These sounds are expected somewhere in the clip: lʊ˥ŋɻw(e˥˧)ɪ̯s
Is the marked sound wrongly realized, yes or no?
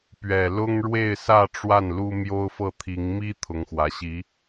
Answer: no